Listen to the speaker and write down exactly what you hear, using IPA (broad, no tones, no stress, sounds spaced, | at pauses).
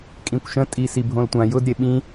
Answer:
kʼ ĩ kʷ ʃ ə̃ tʼ i s i bʱ õ l tʷ ã j ʊ d ɾʲ e ɓ ĩ